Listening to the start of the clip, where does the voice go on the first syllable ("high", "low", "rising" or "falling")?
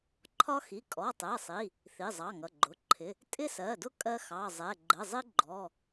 high